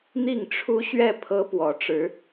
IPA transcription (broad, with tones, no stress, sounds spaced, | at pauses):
n̪ i˥˩ ŋ ʈ͡ʂʰ u˥ ɕ ɥ ɛ˥˩ pʰ ɤ˥ p w ɔ˧˥ ʈ͡ʂ ɻ̩˧˥